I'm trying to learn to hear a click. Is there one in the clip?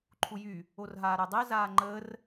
yes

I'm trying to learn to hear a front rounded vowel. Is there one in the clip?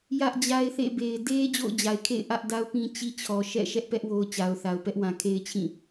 no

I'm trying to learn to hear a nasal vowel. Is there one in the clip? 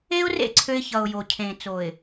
yes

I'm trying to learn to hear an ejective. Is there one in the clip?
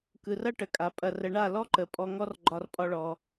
yes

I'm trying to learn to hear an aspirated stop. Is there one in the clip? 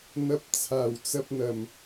yes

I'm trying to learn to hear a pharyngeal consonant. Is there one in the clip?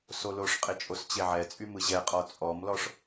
yes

